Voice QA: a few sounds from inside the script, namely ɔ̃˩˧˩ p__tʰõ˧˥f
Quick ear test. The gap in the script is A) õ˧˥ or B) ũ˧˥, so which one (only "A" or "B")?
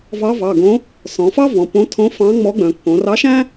A